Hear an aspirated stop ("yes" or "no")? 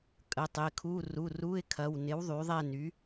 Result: yes